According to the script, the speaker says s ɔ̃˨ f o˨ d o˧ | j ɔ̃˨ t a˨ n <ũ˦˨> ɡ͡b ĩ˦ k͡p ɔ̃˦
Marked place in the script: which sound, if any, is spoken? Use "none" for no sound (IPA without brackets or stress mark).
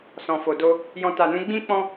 ũ˨˦